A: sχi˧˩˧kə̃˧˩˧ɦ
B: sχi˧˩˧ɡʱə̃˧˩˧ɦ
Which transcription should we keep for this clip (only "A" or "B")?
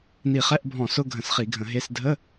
B